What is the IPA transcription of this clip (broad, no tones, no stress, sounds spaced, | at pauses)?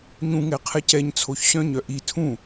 ɲ ũ ŋ ɛ qʰ ɛ c ɛ ɲ t͡sʰ o ç ɕ œ̃ ɲ œ ʔ i tʰ ũ